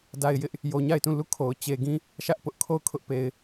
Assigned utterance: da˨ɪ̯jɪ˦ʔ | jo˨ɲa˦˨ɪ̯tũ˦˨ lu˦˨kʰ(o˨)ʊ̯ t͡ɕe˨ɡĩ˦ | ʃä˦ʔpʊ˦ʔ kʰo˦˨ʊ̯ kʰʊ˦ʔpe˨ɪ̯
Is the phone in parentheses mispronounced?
no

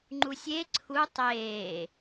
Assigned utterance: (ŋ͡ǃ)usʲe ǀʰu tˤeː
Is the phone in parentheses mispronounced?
no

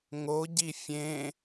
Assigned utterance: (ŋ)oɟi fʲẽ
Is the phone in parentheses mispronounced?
no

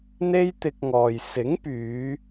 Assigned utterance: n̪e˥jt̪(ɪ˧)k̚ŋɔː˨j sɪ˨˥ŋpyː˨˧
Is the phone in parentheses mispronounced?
no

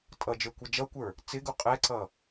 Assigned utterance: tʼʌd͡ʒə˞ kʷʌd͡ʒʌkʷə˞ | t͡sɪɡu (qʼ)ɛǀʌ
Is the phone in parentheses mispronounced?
no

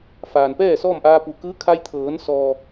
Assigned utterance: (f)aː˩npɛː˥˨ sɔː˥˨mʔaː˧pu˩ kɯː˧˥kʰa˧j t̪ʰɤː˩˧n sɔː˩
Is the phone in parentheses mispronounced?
no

